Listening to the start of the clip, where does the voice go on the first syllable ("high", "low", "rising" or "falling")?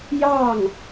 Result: falling